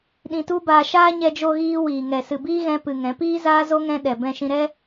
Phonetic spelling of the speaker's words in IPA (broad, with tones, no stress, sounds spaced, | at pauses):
ɗ ĩ˧ t u˦ b aː˧ ʃ aː˦ ɲ ɛ˧ d͡ʒ o˧ ɣ iː˧ w iː˨ ŋ ɛ˨ s ɨ˨ b iː˦ ɣ ɛ̃˦ p ɨ˧ ŋ ɛ̃˨˦ p iː˦ z aː˦ z o˦ ŋ ɛ̃˦ ɗ ɛ˨ b ɛ̃˧ ʃ ĩ˧ ɾ ɛ˦